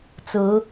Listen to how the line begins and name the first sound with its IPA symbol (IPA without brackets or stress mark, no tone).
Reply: t͡s